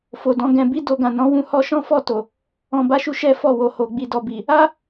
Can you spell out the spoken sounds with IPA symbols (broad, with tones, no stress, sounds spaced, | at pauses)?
f o˨ d ɔ̃˧ ɡ ɛ̃˧ b i˦ d o˧ ɡ ã˨ n ɔ̃˨˦ w ũ˦˨ h ɔ˧ ʃ ɔ̃˦ f ɔ˦˨ t o˨ | ɔ̃˨ b a˨˦ ʃ u˧ ʃ ɛ˦ f ɔ˦˨ w o˨ h o˨ ɡ͡b i˨ d ɔ˨ b i˨ | a˦